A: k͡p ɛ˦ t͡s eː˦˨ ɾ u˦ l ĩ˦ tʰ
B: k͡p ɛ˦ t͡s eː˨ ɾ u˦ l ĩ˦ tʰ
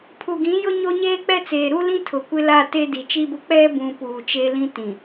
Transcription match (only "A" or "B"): B